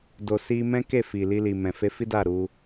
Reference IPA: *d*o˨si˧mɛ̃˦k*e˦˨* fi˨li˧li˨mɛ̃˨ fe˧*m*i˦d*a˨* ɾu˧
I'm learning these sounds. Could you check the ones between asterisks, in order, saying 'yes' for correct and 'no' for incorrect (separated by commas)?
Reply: yes, yes, no, no